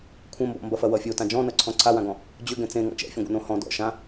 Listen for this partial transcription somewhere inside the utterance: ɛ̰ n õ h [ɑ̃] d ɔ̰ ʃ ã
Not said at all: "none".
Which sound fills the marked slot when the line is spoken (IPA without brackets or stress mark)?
ɔ̃